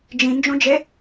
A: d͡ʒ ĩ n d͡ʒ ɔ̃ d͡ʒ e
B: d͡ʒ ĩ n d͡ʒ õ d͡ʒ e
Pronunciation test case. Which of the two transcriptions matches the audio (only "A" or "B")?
B